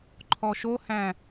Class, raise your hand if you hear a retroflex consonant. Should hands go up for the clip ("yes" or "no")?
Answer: no